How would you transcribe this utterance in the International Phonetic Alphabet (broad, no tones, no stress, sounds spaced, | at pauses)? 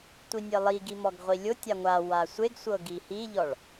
tʷ i nʲ e lˠ i ɡ i m ɔ ɡ ʁʷ i lʲ ʊ tʲ a ŋʷ a w a sʷ e ɡ sʷ ɤ ɡ i h i ʎ ɔ ɭ